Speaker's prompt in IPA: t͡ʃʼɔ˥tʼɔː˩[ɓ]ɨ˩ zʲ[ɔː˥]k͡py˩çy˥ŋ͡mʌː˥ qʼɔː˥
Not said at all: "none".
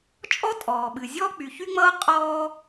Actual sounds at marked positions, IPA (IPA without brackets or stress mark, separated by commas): ɓ, ɔː˥